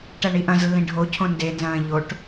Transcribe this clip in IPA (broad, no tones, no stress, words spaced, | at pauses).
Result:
ʈæɳiʔɐ̃zlːĩ ɖʱocʰõ ndenzɐ̃ː ʎoʈ